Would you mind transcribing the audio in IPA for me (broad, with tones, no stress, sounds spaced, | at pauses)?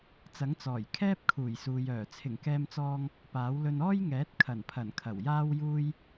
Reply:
t͡s ɐ˨˥ ŋ t͡s ɔː˨˩ j kʰ ɛː˥ p̚ kʰ uː˨˩ j s uː˨ j œː˨˩ t͡sʰ ɪ˨˩ ŋ k ɛː˧ m t͡s ɔː˧ ŋ | p aː˨˥ w l ɵ˧ n ɔː˥ j ŋ ɛː˨˥ t̚ kʰ ɐ˨˩ n pʰ ɐ˨˩ n kʰ ɐ˨˩ w j aː˥ w j uː˥ j